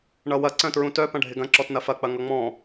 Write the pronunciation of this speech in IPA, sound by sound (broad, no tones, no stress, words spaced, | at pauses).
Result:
ɳʌwɐ ǀœ̃tɹũtœ pɐ̃ɖʱɪɡɐ̃ ǁɔtnɐfɐ k͡pɐŋʌŋ͡mɔ̃